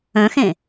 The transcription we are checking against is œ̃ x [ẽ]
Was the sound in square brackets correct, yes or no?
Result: yes